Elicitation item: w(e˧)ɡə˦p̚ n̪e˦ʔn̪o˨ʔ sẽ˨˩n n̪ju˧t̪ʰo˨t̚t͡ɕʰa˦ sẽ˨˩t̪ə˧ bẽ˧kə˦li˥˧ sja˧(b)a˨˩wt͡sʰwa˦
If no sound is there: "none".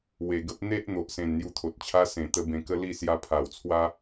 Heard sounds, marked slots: e˨˩, pʰ

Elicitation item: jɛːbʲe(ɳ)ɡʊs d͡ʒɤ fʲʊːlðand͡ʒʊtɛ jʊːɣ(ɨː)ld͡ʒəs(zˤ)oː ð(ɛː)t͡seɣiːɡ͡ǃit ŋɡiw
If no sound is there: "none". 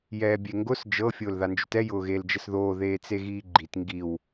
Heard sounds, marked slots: ŋ, eː, ð, eː

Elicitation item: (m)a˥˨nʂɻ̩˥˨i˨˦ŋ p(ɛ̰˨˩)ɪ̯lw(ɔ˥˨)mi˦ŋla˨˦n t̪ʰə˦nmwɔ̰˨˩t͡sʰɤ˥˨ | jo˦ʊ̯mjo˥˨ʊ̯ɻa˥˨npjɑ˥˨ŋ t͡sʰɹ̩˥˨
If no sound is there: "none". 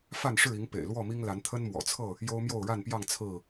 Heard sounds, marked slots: f, ḛ˨˩, ɔ˥˨

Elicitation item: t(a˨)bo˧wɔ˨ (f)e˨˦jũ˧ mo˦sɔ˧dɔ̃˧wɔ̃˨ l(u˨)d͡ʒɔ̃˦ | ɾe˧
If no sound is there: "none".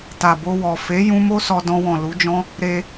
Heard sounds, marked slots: a˨, f, u˨˦

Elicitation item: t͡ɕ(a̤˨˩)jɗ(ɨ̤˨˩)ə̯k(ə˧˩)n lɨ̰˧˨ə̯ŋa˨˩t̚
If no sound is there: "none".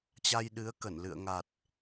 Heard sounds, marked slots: a˧, ɨ˨˦, ə˧˩

